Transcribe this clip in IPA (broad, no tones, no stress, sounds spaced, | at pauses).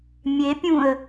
mʲ e pʲ ũ ə̯